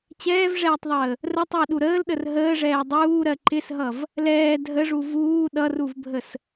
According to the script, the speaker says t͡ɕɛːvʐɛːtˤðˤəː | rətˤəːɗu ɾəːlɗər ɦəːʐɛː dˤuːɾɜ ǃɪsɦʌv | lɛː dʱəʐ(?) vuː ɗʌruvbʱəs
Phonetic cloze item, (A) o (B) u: B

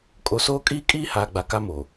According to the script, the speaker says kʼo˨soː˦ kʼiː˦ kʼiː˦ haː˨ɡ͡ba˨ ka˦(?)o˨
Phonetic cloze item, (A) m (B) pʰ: A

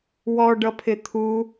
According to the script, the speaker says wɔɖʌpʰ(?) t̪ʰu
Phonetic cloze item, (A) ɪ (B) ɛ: A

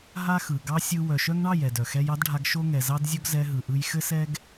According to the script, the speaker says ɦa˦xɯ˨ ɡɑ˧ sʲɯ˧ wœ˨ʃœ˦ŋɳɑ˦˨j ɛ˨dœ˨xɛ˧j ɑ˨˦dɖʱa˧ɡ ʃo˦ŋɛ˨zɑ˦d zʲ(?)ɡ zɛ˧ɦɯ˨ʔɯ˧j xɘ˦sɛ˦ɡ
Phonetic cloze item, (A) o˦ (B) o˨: A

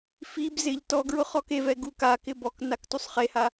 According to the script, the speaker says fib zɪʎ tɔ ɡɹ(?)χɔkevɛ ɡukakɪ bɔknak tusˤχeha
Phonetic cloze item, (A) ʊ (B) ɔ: A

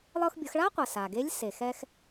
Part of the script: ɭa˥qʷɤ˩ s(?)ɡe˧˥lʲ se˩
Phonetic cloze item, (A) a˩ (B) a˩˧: A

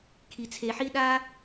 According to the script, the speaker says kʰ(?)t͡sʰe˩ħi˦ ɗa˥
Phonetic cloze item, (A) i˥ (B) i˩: B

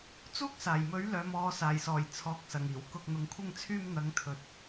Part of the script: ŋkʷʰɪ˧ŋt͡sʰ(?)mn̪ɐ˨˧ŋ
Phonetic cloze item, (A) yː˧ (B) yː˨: A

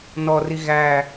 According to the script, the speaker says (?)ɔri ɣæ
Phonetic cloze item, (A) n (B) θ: A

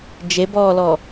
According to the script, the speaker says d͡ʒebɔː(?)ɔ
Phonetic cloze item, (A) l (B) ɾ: A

